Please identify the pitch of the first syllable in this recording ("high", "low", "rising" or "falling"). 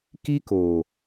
high